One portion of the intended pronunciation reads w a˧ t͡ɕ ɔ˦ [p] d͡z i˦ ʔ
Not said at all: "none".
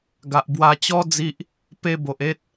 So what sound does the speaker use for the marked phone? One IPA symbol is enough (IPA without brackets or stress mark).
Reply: none